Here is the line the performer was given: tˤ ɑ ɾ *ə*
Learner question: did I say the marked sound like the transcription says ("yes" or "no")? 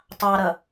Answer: no